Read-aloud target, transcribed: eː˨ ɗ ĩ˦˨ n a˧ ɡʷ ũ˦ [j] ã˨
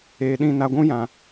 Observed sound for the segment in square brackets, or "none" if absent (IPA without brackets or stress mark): j